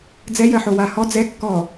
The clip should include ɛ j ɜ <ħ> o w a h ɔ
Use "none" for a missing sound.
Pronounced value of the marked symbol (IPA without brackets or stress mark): ħ